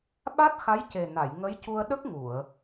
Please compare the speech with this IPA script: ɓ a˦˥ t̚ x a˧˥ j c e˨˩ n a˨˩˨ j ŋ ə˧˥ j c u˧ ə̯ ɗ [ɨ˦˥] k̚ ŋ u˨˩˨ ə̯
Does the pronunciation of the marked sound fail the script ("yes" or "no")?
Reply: yes